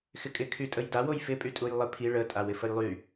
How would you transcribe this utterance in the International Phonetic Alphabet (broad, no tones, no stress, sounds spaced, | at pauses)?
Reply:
x ɪ kʼ ɪ kʰ y tʼ ə j d a w o j f ɪ pʼ y tʼ u j lˠ ɪ pʰ i ɭ ə tʼ a w ɪ f ə j lˠ y